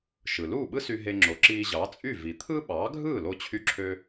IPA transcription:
ʃ ɯ˩ l uː˥˩ ɓ ɯ˥ s y˧ ɦ e˧ ŋ͡ǁ o˩˥ ǁ iː˧ ʑ ɑ˩˥ t͡sʼ y˥˩ v i˩ t̪ʰ ɯ˥ ɓ ɑː˩˥ ɡʱ ɯː˥˩ l o˥ t͡ɕʰ y˥ ǁʰ ø˥

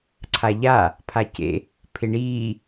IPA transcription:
ǀʰ a ʎ a | pʰ a c ḛ | pʰ ɪ ɳ iː

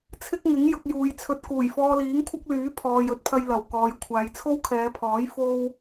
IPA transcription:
t͡sʰ ɪ˥ k̚ ŋ ɪ˨˥ ŋ j ʊ˧ k̚ j uː˨˧ j t͡sʰ ɵ˧ t̚ k uː˨˩ j f ɔː˧ l iː˨˥ ŋ kʷʰ ɐ˥ k̚ l yː˨˥ pʰ ɔː˨ j ɵ˨˥ t̚ pʰ ɐ˧ j l ɐ˨˩ w k ɔː˨ j kʷʰ aː˨˧ j t͡sʰ o˥ w kʰ ɛː˨˧ pʰ ɔː˨˥ j f o˥ w

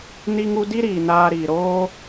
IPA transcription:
n i˦ ŋ u˦ d i˦ ɾ iː˨ n aː˧ ɾ iː˨ ɾ oː˦

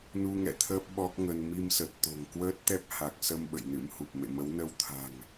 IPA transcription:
n u˧ ŋ ɛ̰˧˨ t̪ʰ əː˦˥ p̚ ɓ ɔ˦˥ k̚ ŋ ə˧ n m i˧ m s ə˨˩ t̚ t̪ o̤˨˩ ŋ k w əː˦˥ t̚ t̪ ɛ˦˥ p̚ h a˨˩ k̚ s ə˧ m ɓ ə̰˧˨ j n ɨ̰˧˥ m h u˨˩ p̚ m ḛ˧˨ m ə˨˦ w n ə˧ w t̪ʰ a̤˨˩ ŋ

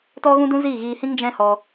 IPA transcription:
t ɔ˦ ɣ ũ˦ d ũ˦ z iː˦˨ ɣ iː˧ h ĩ˦ ŋ d͡ʒ ɛ̃˦ h ɔ˧

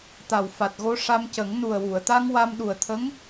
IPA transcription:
t̪ a˨˩ w f a˨˩ t̚ ɣ o˧ ʂ a˧ m c ə˨˩˦ ŋ n u˨˩ ə̯ w u˨˩˨ ə̯ t̪ a˧ ŋ w a˧ m ɗ u˨˩ ə̯ t̪ʰ ə˧˥ ŋ

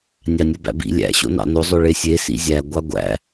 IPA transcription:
nʲ ɑ nʲ o b æ̰ b ḭ lʲ æ̰ ɕ o̰ n ɑ̰ n o zˤ ø ɭ e sʲ e s ḭ zʲ æ ɡʷ ɑ ɡʷ æ̰

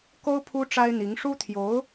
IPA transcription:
k o˥ ʊ̯ pʰ u˥ ʈ͡ʂ a˥ ɪ̯ n̪ i˧˥ ŋ ʂ u˥ t̪ʰ j o˧˥ ʊ̯

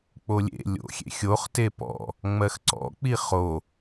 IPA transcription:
k͡p o lʲ ḛ lʲ o̰ xʲ ḛ xʲ o χ t e p ɔ̰ | ŋ͡m ɜ x ǀ ɔ̰ k͡p i χ o

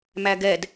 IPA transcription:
m æ ɡ ɛ d

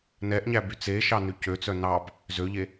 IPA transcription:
n ɛ ʔ ɲ æ b y t͡s e ʃ ɑ n ʉ c ø t͡s œ n ɑ b | z ø ʎ e

